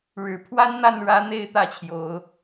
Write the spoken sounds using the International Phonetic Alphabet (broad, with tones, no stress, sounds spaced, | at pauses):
ɻ ɻ̩˨˩ pʰ w a˦ n n̪ a˥˨ n ɻ ä˦ n̪ e˥˨ ɪ̯ t̪ ä˥˨ t͡ɕʰ j o˨˦ ʊ̯